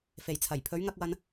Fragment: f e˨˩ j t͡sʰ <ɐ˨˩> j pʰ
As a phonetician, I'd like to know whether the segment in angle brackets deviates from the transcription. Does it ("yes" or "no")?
no